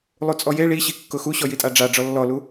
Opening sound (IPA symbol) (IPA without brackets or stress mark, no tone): lˠ